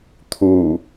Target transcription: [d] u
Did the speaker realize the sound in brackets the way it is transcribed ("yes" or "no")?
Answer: no